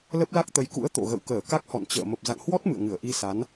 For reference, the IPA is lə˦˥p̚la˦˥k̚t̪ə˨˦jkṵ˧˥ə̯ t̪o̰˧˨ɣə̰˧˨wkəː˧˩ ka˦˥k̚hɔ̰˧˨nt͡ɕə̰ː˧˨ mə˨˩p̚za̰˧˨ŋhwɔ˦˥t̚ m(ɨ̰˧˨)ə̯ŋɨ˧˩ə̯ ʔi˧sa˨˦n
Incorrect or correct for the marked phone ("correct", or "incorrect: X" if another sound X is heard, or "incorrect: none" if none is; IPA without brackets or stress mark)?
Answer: correct